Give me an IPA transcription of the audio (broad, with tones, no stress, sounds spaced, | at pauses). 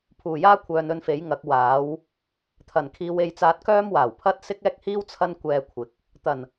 pʰ uː˨˩ j aː˥ kʷʰ œː˨ n ɵ˧ n f e˨˥ j ŋ ɐ˨˥ k̚ w aː˨˥ w | t̪ʰ ɐ˨˩ n kʰ iː˨˧ w e˨˧ j t͡s aː˧ t̚ k œː˥ m w aː˨˩ w pʰ ɐ˥ t̚ s ɪ˥ k̚ ɛː˥ k̚ h iː˥ w t͡sʰ ɐ˥ n kʷ ɛː˧ kʷʰ ɪ˨ k̚ | t̪ ɐ˨˩ n